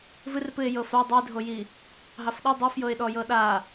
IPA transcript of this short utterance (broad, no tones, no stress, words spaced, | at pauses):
vɨrpɨɪ̯ jɤfa dˤidʱoji | ɦɑfɗɤ dˤɤfjɤɪ̯ɗɔjɤ ɗa